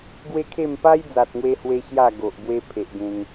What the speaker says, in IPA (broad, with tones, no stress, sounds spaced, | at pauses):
ɡ w e˦ kʰ e˥˧ m p a˦ j d͡z a˨ t̚ ŋ w e˦ h w e˦ ɕ j a˥˧ ɡ o˨ ʔ b w e˦ pʰ e˨ ʔ ɡ ẽ˧ ŋ